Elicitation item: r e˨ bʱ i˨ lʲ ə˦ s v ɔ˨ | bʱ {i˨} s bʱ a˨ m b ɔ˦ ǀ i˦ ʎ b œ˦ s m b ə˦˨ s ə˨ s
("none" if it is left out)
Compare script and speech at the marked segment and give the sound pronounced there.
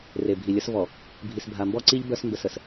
i˨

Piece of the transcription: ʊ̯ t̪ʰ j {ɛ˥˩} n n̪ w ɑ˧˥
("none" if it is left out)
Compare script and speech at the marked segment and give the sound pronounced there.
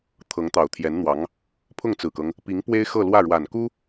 ɛ˧˥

